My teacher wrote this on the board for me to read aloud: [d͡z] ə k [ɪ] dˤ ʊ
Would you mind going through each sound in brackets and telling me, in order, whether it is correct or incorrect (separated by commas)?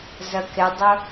incorrect, correct